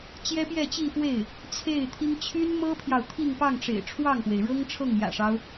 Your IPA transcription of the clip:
t͡ɕ j ɛ˥ p j ɛ˥˧ t͡ɕ i˥˧ f w e˥˩ ɪ̯ | t͡sʰ e˥˩ ɪ̯ t̪ʰ i˥ ŋ t͡ɕʰ y˥ n m ɤ˥ pʰ j ɑ˨ ʊ̯ t̪ʰ i˥˧ ŋ p ɑ˥˩ ŋ ʈ͡ʂ ḛ˨˩ ɪ̯ ʈ͡ʂʰ w ɑ˥˩ ŋ p w e˩ ɪ̯ ɻ ɤ˥ ŋ ʈ͡ʂʰ ɤ˥˩ ŋ j ä̰˨˩ ʂ ɑ˦ ʊ̯

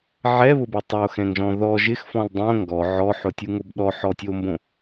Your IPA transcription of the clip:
ʕ ɛ β ʊ b ʊ tˤ o x ɛ̃ ŋ ʒ ɔ̃ ð ɔ ʒ ɪ x f ɔ̃ l dˤ õ ŋ ɡ ɔ ʕ ɔ ħ ʊ tʲ u ŋ o b ɗ ɔ ħ ɔ tʲ o m b õ

